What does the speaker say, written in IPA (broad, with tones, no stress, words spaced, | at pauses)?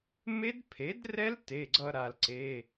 me˦˥dpʰe˩˥drɛ˦˥l te˩˧˩ɡ͡ǀʌ˧ ɾa˩lǀe˩˧˩